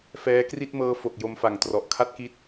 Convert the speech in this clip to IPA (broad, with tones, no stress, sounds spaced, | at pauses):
f ɛː˦˥ k r i˥˩ t̚ m ɤː˦˥ f o˨˩ k̚ j o˧ m f a˨˩ ŋ t r ɔ˨˩ ʔ kʰ a˥˩ t̚ k i˦˥ t̚